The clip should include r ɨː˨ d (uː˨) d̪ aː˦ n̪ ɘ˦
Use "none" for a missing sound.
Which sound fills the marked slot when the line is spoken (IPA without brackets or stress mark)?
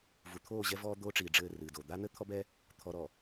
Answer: oː˨